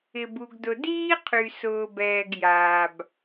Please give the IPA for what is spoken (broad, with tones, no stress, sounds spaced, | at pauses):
ɪ˨ b u˨ ɡ d ʊ˨ d iː˦ qʰ y˨ s ʊː˨ b ɛː˨ ɡ j aː˨ b